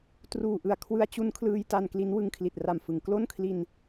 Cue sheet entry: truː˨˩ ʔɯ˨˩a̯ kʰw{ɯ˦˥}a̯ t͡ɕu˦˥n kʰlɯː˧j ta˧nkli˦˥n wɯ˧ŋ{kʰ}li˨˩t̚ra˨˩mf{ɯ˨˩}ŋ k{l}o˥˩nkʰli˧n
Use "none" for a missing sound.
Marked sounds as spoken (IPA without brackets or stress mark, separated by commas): ɯ˦˥, kʰ, ɯ˩˦, l